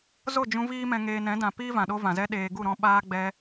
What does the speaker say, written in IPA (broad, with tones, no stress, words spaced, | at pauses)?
zo˦˨d͡ʒũ˧ viː˦mɛ̃˧ ŋeː˧ nɛ̃˨˦dã˨piː˦ vã˨ɗo˦vã˨zɛ˦ ɗeː˧ ɡu˦˨ɾɔ̃˧ ɓaː˧ɡ͡bɛ˧